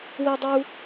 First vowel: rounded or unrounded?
unrounded